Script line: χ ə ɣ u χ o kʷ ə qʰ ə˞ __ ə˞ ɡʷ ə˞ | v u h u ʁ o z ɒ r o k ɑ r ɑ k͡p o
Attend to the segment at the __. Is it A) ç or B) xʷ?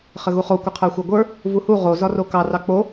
B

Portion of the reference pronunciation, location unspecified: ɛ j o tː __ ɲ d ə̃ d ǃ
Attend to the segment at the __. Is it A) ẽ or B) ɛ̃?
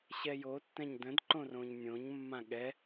B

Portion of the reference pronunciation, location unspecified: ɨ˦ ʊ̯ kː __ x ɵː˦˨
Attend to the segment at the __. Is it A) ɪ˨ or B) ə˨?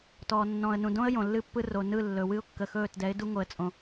B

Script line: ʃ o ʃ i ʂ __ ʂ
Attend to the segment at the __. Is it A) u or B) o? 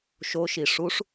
A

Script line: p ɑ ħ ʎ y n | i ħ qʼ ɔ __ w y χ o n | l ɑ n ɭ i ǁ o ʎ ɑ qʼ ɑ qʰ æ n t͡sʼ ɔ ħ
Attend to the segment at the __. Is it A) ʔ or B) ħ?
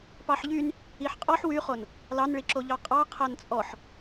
B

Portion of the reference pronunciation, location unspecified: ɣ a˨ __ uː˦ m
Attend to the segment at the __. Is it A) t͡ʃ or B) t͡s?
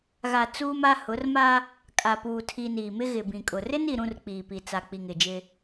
B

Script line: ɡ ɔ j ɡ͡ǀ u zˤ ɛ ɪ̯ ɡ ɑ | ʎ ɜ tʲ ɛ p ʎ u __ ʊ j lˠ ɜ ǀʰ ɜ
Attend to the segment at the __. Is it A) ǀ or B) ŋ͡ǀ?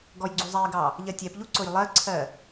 A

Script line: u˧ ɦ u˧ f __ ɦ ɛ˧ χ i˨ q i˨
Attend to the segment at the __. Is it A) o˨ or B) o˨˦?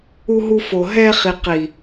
A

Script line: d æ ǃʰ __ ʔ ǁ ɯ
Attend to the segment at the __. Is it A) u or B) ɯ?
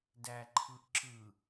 B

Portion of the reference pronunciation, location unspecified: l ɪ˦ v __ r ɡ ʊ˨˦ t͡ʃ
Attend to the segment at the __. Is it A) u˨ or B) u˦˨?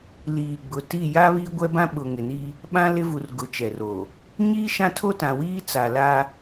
A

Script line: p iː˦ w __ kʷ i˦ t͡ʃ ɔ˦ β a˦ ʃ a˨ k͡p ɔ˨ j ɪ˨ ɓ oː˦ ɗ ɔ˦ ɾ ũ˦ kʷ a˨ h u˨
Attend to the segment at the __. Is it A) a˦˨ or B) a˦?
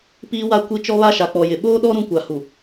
B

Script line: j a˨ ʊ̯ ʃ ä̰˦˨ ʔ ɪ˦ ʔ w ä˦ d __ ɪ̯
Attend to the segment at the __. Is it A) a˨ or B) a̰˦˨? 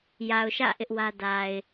A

